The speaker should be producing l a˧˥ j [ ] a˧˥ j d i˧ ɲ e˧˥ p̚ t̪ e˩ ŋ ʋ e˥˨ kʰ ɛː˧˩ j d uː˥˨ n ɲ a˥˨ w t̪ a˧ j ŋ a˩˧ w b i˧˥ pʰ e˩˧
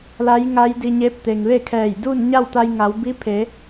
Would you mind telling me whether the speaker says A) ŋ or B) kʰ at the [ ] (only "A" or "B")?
A